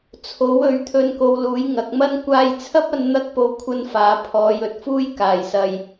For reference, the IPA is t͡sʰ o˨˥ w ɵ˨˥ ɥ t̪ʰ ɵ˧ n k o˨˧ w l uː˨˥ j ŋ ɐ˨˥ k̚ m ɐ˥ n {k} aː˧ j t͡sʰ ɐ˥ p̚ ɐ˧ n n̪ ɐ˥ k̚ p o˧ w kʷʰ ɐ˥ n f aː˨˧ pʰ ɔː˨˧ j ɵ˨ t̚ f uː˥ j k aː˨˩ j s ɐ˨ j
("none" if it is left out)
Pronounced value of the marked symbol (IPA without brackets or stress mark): kʷ